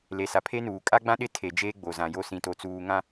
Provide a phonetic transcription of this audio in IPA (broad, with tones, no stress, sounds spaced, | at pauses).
l e˨ s a˨ pʰ e˦ n uː˨ kʼ a˦ ɡ͡b ã˦ ɗ ɪ˦ tʰ e˨ d͡ʒ eː˦ ɡ͡b o˨ z ã˨ j o˦ s ĩ˨ t o˨ t͡s uː˨ ŋ ã˨